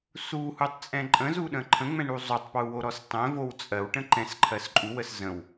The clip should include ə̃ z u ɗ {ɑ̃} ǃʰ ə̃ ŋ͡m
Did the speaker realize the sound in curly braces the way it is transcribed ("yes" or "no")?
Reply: no